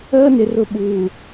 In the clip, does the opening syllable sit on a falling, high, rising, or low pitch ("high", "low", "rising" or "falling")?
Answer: high